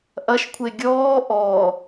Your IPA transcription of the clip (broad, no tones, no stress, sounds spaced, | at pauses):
ʔ ɐ ʃ kʷʰ e ɡʲ ɔː ʔ ɔː